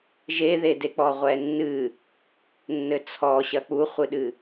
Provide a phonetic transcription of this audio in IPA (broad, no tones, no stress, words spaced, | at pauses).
ʒeðedek͡pɔ ʁʷɛnːɨ | nːɘt͡sʰɔɕɐ k͡puχʷɨɗɨ